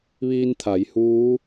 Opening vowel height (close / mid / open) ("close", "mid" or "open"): close